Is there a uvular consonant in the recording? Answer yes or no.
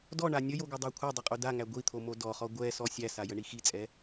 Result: yes